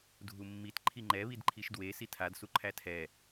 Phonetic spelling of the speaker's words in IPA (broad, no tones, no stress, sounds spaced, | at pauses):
dʱ u mː i t ǃʰ i ŋ͡ǃ ɛ β i d ǃʰ i ʃ d w e s i tʰ a d s u ǃʰ æ tʰ ɛ